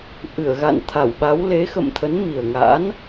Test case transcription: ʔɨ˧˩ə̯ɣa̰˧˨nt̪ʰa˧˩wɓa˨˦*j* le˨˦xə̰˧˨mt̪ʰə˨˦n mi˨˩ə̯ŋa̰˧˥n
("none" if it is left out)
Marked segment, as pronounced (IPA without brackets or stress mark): w